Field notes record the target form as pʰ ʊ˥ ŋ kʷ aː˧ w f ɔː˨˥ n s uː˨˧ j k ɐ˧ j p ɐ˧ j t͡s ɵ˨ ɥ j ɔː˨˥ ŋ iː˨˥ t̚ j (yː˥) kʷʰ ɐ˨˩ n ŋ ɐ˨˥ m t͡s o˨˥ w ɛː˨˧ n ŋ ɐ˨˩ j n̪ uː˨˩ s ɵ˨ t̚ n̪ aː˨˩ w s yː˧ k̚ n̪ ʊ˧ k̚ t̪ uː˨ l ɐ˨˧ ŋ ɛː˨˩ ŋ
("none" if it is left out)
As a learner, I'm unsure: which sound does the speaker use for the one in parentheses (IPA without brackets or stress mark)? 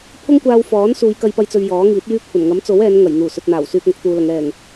yː˥